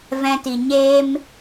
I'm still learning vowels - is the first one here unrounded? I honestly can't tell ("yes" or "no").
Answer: yes